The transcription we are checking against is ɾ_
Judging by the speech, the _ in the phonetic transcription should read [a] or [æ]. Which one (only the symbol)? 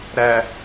æ